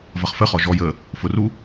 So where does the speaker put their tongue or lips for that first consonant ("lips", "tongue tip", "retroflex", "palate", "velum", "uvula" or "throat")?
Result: lips